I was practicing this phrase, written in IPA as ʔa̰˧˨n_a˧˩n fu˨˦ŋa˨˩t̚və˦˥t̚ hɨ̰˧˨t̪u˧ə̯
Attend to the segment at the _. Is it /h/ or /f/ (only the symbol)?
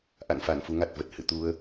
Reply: f